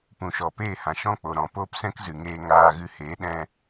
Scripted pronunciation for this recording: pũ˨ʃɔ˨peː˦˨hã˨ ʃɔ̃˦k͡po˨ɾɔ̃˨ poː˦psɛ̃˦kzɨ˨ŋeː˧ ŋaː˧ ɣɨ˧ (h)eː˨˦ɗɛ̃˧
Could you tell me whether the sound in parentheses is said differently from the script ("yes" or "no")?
no